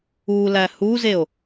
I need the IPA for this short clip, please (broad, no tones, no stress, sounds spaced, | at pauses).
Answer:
u l æ h u z e o̯